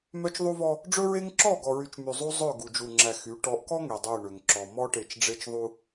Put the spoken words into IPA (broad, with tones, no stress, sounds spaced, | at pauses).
m œ˦ t͡ʃ ðˤ u˦ v ɔ˦ | ɖ͡ʐ ɵ˦ ɹ e˦ ŋ ǁ ɔ˦˨ ɡ ɔ˨ ɹ y˨ t͡ʃ m y˨ zˤ u˦ zˤ ɵ˦˨ ɡ u˨ d͡ʒ u˨ ŋ͡ǁ æ˨ x y˨˦ ʈ ɔ˨˦ ʔ k ɔ˦ ŋ e˨ dˤ ø˦˨ ɳ ø˨ ŋ ǁ ɔ˨ m ɔ˦ ʈ e˨ t͡ʃ ɖ͡ʐ e˦ t͡ʃ ðˤ u˦